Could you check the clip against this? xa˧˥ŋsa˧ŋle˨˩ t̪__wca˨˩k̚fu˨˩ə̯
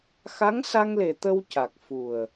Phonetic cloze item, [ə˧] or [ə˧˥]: ə˧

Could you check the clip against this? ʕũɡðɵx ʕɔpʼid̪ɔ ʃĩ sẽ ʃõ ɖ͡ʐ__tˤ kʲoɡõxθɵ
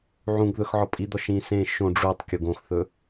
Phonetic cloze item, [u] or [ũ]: u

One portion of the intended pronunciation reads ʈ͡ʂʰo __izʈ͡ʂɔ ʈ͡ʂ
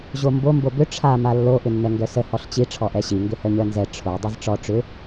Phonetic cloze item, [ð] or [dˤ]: dˤ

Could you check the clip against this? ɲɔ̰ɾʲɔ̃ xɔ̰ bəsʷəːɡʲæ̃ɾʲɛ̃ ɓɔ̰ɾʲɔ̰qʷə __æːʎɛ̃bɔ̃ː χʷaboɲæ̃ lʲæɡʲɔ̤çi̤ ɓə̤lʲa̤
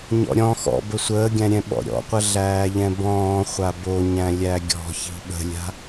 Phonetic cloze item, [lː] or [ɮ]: ɮ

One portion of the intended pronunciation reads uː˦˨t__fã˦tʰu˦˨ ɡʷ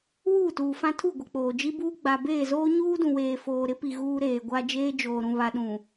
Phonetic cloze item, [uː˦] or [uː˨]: uː˨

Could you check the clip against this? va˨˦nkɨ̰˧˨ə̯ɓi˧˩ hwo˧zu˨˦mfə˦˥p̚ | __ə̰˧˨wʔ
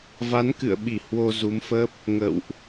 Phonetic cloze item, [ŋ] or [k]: ŋ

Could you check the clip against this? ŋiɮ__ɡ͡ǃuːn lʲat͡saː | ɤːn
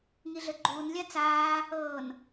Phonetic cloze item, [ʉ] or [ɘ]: ɘ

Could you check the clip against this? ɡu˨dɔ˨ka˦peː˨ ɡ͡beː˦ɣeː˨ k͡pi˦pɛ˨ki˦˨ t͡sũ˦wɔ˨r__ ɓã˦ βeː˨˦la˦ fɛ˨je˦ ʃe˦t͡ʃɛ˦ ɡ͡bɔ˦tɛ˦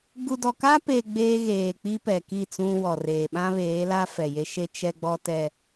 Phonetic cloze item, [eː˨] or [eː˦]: eː˨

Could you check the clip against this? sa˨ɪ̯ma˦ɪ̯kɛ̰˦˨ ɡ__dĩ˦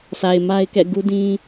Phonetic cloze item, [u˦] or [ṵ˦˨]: u˦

